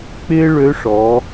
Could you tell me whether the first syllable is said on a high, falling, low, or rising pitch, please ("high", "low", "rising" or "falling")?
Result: high